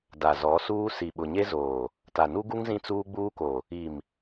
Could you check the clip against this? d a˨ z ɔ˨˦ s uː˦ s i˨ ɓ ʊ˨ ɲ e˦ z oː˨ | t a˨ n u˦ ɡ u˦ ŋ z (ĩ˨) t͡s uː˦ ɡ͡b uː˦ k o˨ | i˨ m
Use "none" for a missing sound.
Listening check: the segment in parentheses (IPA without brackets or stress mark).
ĩ˦